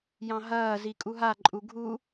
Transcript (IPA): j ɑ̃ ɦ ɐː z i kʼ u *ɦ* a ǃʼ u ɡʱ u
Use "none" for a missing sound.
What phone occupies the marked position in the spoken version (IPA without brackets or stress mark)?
ɦ